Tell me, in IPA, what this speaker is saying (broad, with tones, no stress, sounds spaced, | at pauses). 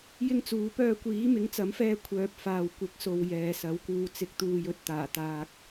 j ɪ˥ ŋ t͡s uː˨˥ p œː˧ kʷ iː˨˥ m ɪ˨˥ ŋ t͡s ɐ˨˥ m f ɛː˧ kʷʰ œː˨ p̚ f aː˨ w kʷ ɪ˨˥ k̚ s o˨ w j ɛː˨ s ɐ˨˥ w k uː˧ t͡s ɪ˨ k̚ t̪ uː˨ j ɵ˨ t̚ t̪ aː˨˩ t̪ aː˨ k̚